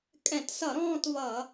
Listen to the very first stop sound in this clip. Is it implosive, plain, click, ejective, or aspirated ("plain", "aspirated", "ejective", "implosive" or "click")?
ejective